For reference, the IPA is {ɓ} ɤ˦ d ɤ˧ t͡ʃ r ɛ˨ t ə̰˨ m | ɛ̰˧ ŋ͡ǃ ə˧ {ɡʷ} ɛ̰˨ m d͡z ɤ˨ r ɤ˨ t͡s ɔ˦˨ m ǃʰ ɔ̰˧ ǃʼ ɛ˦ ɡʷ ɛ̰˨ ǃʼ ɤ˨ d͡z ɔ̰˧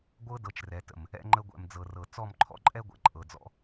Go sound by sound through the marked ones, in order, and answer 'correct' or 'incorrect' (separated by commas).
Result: incorrect, correct